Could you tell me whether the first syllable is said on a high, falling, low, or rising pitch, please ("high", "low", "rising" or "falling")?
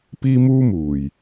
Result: high